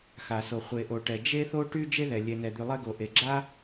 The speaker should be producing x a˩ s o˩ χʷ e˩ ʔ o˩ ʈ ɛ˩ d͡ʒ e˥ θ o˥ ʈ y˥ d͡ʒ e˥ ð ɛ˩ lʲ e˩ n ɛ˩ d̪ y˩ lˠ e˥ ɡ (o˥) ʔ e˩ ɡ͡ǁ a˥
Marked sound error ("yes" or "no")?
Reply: yes